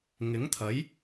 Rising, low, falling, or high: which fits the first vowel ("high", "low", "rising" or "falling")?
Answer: rising